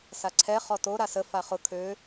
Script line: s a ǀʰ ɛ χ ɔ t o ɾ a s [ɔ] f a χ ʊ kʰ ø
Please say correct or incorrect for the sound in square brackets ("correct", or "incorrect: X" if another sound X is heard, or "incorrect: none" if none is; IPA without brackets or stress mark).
incorrect: ə